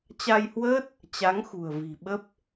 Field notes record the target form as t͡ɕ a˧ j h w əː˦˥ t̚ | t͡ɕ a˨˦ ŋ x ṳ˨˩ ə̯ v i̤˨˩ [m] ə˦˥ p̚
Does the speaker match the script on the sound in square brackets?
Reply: no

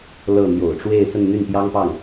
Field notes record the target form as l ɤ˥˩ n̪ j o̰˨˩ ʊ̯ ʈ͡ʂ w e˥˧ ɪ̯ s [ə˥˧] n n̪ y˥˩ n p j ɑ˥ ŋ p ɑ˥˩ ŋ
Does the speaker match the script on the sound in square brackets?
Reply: yes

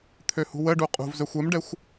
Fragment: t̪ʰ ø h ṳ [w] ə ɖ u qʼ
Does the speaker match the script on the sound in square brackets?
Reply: yes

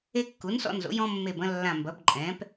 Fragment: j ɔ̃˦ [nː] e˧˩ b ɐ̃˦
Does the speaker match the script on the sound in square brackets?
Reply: no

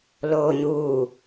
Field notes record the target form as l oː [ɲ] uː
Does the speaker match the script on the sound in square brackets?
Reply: yes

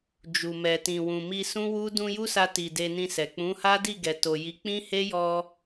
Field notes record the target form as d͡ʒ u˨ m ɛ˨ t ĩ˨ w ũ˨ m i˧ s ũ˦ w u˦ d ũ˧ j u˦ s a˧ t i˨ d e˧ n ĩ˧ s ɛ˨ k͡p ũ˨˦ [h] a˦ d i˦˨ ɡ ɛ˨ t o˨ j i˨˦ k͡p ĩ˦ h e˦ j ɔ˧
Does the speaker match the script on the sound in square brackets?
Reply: yes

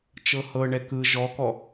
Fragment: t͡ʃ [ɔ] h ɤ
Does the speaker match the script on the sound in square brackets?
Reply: no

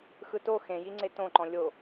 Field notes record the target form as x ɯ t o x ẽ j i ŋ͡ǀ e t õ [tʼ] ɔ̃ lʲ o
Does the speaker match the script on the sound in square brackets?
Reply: no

